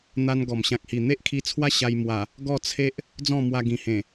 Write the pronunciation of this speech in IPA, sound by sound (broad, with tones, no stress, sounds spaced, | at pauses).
n̪ a˧ n ɡ ɔ˨˩ m ɕ ã˨ k̚ h i˨˩ n̪ e˦ ʔ kʰ i˧ t͡sʰ w a˦ ɕ a˧ j m w a˨˩ | ɡ ɔ˥˧ t͡sʰ e˦ ʔ | d͡z ɔ̃˥˧ m w a˧ ɡ ĩ˨˩ h ẽ˨˩